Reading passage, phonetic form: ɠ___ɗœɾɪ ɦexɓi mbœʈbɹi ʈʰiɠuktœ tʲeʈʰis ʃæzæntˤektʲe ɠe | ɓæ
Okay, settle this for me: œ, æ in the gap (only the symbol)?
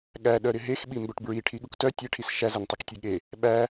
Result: æ